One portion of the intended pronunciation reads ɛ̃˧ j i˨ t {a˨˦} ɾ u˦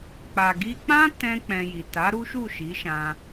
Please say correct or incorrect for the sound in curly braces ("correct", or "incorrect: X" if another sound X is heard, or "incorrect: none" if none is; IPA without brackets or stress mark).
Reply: correct